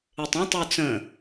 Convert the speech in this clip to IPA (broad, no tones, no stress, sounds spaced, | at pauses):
e tˤ ə̃ tˤ u t͡s ə̃